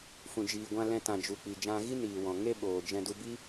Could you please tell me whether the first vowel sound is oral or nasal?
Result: nasal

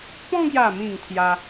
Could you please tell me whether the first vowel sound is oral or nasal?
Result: nasal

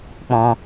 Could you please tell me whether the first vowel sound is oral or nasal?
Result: nasal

